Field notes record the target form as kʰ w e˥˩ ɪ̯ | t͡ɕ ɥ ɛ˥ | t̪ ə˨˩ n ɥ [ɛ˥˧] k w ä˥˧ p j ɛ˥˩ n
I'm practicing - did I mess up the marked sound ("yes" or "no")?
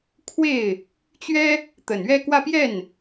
no